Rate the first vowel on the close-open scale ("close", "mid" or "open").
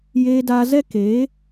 mid